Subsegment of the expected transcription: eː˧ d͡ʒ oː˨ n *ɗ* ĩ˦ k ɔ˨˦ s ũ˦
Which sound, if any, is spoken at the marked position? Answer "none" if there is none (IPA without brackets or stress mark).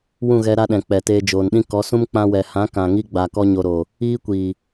ɗ